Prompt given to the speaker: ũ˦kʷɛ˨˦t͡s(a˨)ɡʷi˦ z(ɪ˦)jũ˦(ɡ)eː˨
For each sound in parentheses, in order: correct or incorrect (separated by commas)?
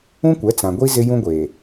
incorrect, correct, incorrect